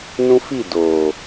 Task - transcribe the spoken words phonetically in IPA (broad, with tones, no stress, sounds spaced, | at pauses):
n ũ˦ f i˦˨ d o˨